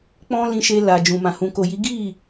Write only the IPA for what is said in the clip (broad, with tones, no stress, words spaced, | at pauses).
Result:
k͡pɔ̃˦lĩ˧ʃe˧la˨ d͡ʒũ˨mã˨ hũ˨ko˨ji˨˦ ɡi˦˨